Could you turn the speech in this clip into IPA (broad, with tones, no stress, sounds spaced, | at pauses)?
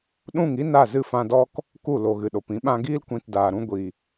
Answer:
ɗ ũ˦˨ ŋ i˦ n a˦˨ z ɨ˦˨ f ã˧ d ɔ˦ k | k u˦˨ l o˨ ɣ ɨ˨ ɗ o˨ p ĩ˧ ɓ ã˧ ɡ iː˦ l kʷ ĩ˧ t d aː˨ ɾ ũ˦ ɡʷ i˨